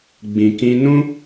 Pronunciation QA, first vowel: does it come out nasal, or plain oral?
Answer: nasal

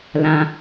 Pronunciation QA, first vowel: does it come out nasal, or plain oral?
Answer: nasal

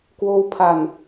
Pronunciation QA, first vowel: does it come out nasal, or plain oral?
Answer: oral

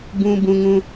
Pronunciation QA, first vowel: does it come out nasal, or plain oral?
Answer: nasal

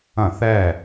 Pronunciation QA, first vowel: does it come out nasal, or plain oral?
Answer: nasal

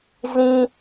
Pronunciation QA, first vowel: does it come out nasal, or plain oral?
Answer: nasal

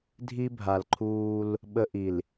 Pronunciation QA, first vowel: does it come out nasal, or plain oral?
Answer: oral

